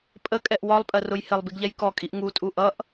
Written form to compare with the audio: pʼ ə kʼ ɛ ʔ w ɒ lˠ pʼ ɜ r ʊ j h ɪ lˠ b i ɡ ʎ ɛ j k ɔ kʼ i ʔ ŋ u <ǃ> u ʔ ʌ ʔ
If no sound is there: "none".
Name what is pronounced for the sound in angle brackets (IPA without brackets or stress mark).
tʼ